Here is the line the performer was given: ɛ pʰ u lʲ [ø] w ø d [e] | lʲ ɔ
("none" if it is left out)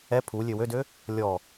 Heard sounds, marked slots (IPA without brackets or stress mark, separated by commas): ø, ø